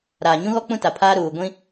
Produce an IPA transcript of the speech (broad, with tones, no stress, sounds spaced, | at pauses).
ɾ aː˨ ɲ ũ˦ ɣ ɔ˦ k͡p ũ˦ t a˨ pʰ aː˦ ɾ uː˨ ɡʷ ĩ˦